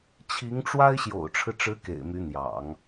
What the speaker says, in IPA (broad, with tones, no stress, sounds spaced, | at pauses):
t͡ɕʰ i˧˥ ŋ ʈ͡ʂ w a˥ ɪ̯ ɕ j o̰˨˩ ʊ̯ ʈ͡ʂʰ ɻ̩˦ ʈ͡ʂ ɻ̩˧˥ k ḛ˨˩ ɪ̯ m y˧˥ n̪ j ɑ̰˨˩˦ ŋ